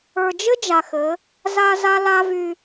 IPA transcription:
ə˞˨ d͡ʒ ɘ˦ d͡ʒ a˨ x ɘ˨˦ | z a˦ z a˦ l a˦ v y˦

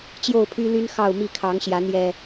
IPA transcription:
t͡ɕ j o˥˨ ʊ̯ pʰ y˦ l y˦ n x ɑ˥˨ ʊ̯ m i˥˨ kʰ ɑ˨˦ ŋ ɕ j ä˨˦ n̪ j ɛ˨˩

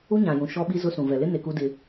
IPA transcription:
u˦ ɲ ã˨ j ũ˨ ʃ ɔ˦ ɓ i˦ z ʊ˦ s ũ˨ v ɛ˨ l ɪ˦ n e˨ k u˦ d ɪ˦

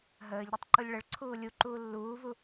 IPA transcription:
ɦ əː ʎ ɾ e tˤ ǃ u lʲ ɭ ə ɭ ǀʰ uː lʲ u ǃ uː lː uː v u

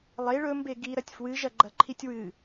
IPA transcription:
lˠ e ɭ ɵ m b e ɡ i ɾ ɐ tʲ f w ɨ ʒ ɐ ɡ͡ǃ ɐ ǃʰ i tʲ w ɨ

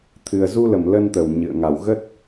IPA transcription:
t̪ʰ ɨ˨˩ ə̯ z u˧ l ə˧˩ m l ə˧ n t̪ ə˧˩ w ɲ ɨ̰˧˨ ə̯ ŋ a˧˩ w ɣ ə˦˥ t̚

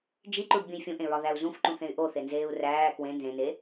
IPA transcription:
d͡ʒ i ǃ u ɖ bʲ ũ j fʲ ũ ʔ ẽ ɹ ɒ ð æ u̯ z ũ f ǃ ũ θ ẽ y̯ ʔ o θ e n z eː u̯ r æː k w ẽ n z ẽ n e

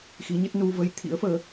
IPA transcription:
x i˨˦ ɲ ə˦˥ t̚ n u˧ v ə˧ j t̪ʰ ḭ˧˥ ə̯ f əː˨˦

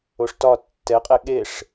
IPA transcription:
o ʂ t ɒ tː ɛ qʼ e ɠ e ʂ

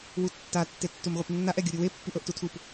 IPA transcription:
w u tː a tː e tː u m ʁʷ i p nː a ʔ ɛ ɡʲ u ɾʲ u w e pː i ʔ ɤ ʔ t u tʰ u p

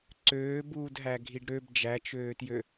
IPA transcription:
ǀ øː b uː d ɦ æ ɡʱ i ɖ ɾ ø b d͡ʒ æ t͡ʃ øː t j ø

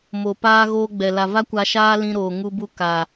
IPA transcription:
m o˨ p aː˦ ɣ oː˧ ɡ͡b ɛ˨ l a˨ v a˦ kʷ a˧ ʃ aː˦ l ĩ˧ ɾ oː˨ ŋ u˧ b u˧ k a˨

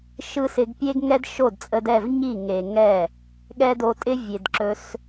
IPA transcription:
ʃ ɯ˦ s ɪ˧ ɡ pʲ e˦ ɡ ŋ ɛ˦ d ʃ o˦˨ d t͡sʼ ə˧ d ɛ˦˨ v ɲ i˦˨ ŋ e˨ ŋ ɛ˦˨ | ɠ ɛ˦ d o˧ tʼ ɪ˦ vʲ e˨ d ǁ ɵ˧ s

